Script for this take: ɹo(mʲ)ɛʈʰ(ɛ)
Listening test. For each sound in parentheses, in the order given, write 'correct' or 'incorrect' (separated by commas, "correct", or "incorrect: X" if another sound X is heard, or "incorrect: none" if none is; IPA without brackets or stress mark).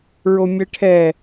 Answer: correct, correct